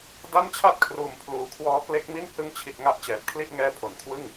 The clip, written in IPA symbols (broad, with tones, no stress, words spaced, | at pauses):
da˥˩nt͡ɕʰa˥˩t̚kʰruː˨˩m pʰluː˨˩kʰwɔː˦˥ kle˦˥k̚mi˥˩n hɯ˧ŋt͡ɕʰi˨˩t̚ ŋa˥˩ʔt͡ɕɛː˨˩p̚ kʰli˥˩ʔŋɛː˦˥pʰo˩˦n kʰwɯ˥˩ŋ